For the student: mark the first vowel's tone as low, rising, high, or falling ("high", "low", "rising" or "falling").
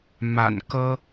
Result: low